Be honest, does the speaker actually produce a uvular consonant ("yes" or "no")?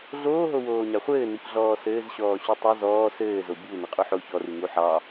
yes